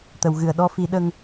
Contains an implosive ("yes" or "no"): yes